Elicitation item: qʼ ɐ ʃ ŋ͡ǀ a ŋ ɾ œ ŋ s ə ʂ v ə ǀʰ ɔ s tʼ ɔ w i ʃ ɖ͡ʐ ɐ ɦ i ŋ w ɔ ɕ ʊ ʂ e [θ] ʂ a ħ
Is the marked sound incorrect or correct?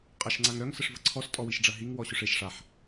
incorrect